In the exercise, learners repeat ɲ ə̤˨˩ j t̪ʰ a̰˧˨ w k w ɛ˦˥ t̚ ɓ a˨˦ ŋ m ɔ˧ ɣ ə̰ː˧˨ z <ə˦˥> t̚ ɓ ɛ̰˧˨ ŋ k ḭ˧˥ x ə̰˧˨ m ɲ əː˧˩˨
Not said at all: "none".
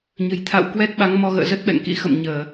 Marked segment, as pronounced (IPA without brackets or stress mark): ə˦˥